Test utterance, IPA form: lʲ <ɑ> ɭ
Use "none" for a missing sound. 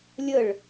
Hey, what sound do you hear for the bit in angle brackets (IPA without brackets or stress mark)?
ə